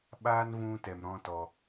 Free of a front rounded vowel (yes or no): yes